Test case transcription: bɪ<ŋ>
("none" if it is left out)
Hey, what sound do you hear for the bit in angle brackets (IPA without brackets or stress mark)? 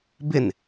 n